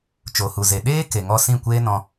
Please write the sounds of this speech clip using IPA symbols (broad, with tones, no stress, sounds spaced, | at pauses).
t͡ʃ o˨ h u˨ z e˨ ɗ eː˦ k e˨ ŋ ɔ˧ s ĩ˦˨ kʷ eː˦ n ɔ̃˧